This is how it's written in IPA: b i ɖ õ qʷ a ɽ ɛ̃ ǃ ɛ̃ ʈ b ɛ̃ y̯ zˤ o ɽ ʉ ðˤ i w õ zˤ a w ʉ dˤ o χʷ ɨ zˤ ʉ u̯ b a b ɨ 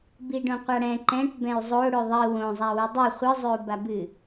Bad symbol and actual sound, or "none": none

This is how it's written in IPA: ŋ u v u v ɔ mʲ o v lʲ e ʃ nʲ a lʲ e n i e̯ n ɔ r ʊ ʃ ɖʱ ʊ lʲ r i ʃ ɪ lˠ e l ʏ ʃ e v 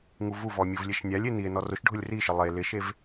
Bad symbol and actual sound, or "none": ʏ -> ɪ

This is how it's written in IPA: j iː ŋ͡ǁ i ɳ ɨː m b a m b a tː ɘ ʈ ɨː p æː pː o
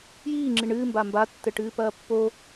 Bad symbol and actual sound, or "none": æː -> ɐː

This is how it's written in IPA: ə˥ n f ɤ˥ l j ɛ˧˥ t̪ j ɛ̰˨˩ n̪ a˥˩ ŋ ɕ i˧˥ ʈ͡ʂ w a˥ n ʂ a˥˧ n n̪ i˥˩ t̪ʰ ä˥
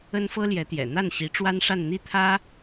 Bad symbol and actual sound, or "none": ŋ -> n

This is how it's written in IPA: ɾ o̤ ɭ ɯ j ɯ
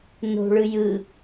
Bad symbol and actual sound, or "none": ɾ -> n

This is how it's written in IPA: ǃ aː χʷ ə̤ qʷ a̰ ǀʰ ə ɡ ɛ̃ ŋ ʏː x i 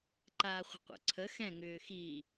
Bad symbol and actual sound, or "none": ɡ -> x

